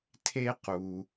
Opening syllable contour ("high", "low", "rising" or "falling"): high